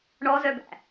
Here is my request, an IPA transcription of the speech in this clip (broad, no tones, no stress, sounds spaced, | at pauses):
ɳ ɔ z œ b æ̰